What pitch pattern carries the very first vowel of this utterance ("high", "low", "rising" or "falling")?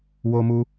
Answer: high